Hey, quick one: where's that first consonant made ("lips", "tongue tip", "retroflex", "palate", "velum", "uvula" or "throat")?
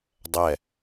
tongue tip